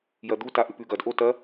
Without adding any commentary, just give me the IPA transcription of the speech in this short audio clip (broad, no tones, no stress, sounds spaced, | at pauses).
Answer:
j ɐ d̪ u t a ʔ ʉ p ʉ ɡ ɐ d ʔ o t ɐ